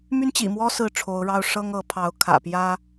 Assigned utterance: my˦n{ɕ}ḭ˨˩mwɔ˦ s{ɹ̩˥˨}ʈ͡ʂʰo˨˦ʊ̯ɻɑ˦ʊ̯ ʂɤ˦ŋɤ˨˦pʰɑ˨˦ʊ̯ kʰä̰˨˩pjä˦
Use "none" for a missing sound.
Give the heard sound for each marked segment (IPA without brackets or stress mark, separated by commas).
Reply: t͡ɕ, ɹ̩˥˨